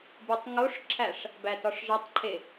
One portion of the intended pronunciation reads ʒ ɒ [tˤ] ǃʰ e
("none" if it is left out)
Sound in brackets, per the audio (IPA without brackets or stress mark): tˤ